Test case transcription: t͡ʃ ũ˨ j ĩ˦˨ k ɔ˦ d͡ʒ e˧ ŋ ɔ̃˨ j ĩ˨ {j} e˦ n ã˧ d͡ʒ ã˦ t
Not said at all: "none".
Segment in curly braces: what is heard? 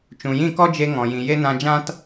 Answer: j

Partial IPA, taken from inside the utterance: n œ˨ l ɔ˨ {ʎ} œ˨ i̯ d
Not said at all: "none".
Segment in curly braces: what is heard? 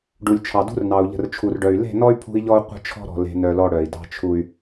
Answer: ɽ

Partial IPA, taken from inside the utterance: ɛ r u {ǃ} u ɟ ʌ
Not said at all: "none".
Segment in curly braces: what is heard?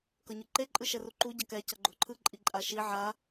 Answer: ǃ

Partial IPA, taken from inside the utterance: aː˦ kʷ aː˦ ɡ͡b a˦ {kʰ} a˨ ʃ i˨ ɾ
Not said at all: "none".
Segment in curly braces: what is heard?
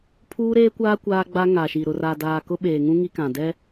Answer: ŋ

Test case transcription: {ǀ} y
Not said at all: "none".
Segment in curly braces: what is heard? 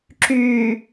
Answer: ǁ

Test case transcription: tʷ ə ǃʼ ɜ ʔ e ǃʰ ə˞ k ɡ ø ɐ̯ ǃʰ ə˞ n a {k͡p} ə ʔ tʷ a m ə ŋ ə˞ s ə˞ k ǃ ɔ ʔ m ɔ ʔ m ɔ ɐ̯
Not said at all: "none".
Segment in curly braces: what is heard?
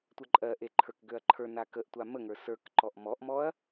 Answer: k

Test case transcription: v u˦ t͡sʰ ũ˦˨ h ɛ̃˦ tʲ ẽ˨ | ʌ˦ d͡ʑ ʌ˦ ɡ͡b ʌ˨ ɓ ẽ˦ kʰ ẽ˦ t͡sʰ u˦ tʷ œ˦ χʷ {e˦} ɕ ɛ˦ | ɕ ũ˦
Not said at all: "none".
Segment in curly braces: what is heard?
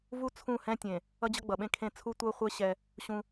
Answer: e˦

